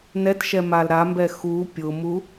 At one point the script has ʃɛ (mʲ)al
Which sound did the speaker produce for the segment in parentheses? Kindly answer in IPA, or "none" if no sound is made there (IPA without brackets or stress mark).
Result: m